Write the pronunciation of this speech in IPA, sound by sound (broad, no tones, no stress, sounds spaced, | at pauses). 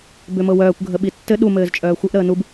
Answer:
b ʏ m ɤ w œː kʷ ɡʱ ə ɓ i tː ɘ ɗ u m ɘː z t͡ʃʼ œː xʷ ɘ ʔ ɾ əː n u b